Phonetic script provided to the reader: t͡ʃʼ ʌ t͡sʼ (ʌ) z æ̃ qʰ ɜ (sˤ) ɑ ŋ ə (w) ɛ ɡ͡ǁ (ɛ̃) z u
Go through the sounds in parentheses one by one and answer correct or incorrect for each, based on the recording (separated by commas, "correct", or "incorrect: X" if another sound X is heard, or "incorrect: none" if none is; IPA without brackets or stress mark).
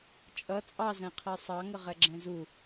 incorrect: ɑ, correct, incorrect: ʁ, correct